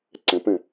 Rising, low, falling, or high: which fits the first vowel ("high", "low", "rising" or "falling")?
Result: rising